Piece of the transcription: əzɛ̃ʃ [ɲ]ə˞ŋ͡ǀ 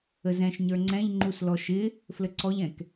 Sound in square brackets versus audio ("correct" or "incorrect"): correct